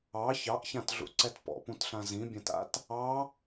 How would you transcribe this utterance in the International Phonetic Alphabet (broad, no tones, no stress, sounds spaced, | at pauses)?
ɑ ç ɑ ʔ ç ã t ɮ ṵ ǀ ɛ t p ɔ̰ p ũ t ɬ ã z ĩ bʲ ã t a̰ t | ɑ